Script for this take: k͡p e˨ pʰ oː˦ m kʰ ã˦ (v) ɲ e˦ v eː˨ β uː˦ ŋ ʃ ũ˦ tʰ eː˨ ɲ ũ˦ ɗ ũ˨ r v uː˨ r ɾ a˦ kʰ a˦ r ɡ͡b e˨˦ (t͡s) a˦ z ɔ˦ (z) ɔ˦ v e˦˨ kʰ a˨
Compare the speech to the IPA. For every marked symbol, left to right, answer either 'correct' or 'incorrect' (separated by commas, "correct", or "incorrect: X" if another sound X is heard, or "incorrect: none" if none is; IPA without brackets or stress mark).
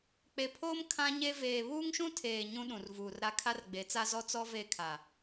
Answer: incorrect: none, correct, incorrect: t͡s